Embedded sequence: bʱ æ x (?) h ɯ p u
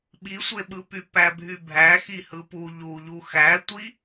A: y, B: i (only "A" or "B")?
B